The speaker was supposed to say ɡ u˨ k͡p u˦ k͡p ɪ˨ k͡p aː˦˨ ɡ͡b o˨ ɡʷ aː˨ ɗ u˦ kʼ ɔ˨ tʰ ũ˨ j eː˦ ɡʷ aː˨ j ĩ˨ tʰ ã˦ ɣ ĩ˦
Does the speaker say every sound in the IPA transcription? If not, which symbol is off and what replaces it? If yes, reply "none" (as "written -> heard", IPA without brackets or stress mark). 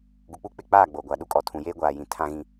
none